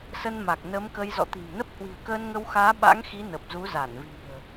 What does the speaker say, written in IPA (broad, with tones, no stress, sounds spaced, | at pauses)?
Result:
s ə˧ n m a˨˩ k̚ n ə˨˦ m k ə˧ j z ɔ̰˧˨ t̪ i̤˨˩ m n ə˦˥ p̚ h w i̤˨˩ ə̯ k əː˧ n ŋ ə˧ w x aː˨˦ ɓ a̰˧˥ ŋ x i˨˦ n ə˨˩ p̚ z u˨˦ z a˧˩ n v i̤˨˩ ə̯